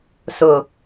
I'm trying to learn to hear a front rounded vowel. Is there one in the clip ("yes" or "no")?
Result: no